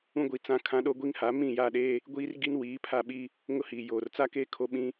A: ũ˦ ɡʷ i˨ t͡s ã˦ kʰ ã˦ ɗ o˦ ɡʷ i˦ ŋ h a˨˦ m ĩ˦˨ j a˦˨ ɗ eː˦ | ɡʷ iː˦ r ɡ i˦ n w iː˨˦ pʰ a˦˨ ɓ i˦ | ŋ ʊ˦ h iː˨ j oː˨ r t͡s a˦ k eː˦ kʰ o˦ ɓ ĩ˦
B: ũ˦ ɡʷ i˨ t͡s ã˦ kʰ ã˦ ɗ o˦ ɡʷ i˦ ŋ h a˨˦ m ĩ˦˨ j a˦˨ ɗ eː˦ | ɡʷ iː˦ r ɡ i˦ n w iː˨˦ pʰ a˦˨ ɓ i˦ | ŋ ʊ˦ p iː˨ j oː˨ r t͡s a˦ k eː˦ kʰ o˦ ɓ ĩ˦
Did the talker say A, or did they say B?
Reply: A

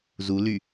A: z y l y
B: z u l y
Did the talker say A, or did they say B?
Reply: B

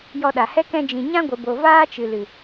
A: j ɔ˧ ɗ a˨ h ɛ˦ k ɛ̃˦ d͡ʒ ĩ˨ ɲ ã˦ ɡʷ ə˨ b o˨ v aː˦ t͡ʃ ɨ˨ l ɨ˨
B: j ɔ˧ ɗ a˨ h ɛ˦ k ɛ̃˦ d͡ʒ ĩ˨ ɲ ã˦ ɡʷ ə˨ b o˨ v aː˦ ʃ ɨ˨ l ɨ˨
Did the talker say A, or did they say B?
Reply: A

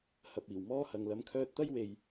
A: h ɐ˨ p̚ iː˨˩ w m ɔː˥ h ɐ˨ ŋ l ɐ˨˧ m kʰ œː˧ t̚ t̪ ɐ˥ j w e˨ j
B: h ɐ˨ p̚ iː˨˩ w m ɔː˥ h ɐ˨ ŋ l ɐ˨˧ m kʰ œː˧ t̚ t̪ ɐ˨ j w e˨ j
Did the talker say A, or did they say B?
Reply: A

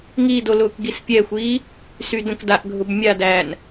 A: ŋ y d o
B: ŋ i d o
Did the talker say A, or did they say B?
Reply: B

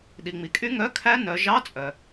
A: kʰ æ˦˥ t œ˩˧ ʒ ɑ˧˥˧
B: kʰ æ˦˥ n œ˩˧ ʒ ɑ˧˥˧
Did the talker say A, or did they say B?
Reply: B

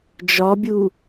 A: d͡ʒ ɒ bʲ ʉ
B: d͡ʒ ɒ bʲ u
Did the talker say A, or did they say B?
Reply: B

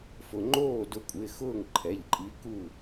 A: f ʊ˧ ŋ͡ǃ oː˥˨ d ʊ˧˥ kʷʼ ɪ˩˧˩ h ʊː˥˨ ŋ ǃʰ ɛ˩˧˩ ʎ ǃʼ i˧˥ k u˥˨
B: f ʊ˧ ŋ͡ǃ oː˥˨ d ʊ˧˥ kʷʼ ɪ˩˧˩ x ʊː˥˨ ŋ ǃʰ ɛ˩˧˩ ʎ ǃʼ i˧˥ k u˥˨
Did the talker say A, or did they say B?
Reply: B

